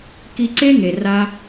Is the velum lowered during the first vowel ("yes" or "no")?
no